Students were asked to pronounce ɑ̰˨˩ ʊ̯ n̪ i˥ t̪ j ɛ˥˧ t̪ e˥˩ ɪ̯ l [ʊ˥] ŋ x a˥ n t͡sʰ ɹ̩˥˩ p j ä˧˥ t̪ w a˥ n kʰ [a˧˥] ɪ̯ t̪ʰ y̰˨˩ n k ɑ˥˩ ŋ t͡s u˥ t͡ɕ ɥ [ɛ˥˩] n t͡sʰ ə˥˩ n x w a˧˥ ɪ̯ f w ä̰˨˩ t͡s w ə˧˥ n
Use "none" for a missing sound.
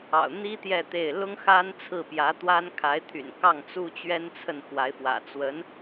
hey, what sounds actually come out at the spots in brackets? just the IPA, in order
ʊ˥, a˧˥, ɛ˥

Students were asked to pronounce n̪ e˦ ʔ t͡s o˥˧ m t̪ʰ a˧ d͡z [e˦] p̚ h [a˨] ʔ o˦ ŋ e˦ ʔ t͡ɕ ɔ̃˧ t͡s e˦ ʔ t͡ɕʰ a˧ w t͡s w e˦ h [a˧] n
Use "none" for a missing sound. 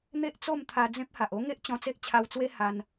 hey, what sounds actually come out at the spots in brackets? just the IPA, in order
ẽ˦, a˨, a˧

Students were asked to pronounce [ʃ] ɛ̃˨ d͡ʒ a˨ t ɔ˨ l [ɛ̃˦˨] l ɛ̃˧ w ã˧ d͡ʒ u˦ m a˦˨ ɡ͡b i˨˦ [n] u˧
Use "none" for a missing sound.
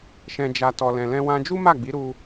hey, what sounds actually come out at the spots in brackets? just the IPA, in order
ʃ, ɛ̃˨, ɾ

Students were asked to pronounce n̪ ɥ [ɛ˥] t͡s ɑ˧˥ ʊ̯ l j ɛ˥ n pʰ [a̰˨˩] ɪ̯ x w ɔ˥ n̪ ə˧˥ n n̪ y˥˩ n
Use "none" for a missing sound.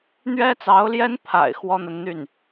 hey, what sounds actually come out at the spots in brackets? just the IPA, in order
ɛ˥, a̰˨˩

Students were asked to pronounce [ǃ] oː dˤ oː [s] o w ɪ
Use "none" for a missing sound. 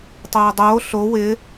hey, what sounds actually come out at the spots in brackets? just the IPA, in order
tˤ, ɬ

